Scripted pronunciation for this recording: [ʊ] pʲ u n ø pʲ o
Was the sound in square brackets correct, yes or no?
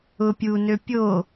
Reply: yes